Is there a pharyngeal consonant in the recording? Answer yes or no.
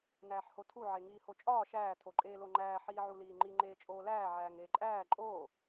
yes